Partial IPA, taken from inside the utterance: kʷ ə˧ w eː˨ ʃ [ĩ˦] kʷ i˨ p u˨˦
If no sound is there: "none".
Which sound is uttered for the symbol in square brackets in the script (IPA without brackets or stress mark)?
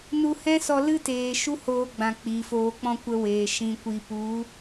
ĩ˨